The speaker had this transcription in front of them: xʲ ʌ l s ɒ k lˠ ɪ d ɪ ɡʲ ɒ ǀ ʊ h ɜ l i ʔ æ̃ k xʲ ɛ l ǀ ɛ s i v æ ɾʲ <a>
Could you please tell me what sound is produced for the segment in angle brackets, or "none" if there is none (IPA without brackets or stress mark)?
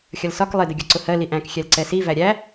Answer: æ